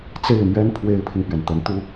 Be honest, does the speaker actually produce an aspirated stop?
yes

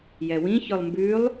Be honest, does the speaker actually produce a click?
no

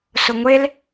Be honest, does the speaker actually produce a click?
no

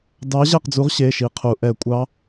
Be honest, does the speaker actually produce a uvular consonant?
yes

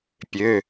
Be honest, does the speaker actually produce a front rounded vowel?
yes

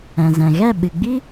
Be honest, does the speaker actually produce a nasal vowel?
yes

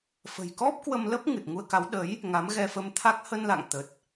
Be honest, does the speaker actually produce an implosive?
yes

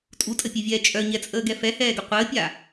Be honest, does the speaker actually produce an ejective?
yes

